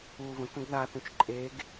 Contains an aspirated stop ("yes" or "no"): no